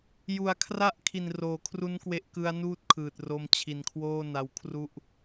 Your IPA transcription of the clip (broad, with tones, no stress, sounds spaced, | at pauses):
j u˩˦ a̯ kʰ r a˦˥ ʔ kʰ i˨˩ n r oː˩˦ kʰ r u˦˥ n k w e˦˥ ʔ k ɯ˦˥ a̯ n uː˥˩ t̚ kʰ ɯː˨˩ t̚ r o˧ m t͡ɕʰ i˨˩ n kʰ w oː˥˩ n a˧ w kʰ r u˥˩ ʔ